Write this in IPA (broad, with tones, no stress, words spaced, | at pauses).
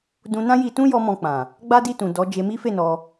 dũ˧nã˦ji˧tũ˦ jɔ˧ mɔ̃˧k͡pã˨ | ɡ͡ba˦di˦˨tũ˨ dɔ˨˦ d͡ʒe˧mi˦fe˦˨ nɔ˧